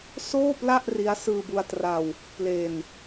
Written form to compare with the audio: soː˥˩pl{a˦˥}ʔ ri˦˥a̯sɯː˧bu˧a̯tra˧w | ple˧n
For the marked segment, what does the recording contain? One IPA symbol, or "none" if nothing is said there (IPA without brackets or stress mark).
a˥˩